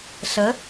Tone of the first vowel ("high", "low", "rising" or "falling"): rising